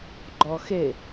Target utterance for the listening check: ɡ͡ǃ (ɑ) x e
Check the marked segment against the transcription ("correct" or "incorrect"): incorrect